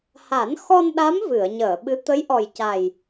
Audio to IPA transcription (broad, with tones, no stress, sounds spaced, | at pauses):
h a˨˩˦ n x ɔ˧ n ɗ a˧˥ m v ɨ˨˩˨ ə̯ ɲ əː˨˩˨ ɓ ɨ˧˥ t̪ ə˧˥ j ʔ ɔ˨˩ j c a˨˩ j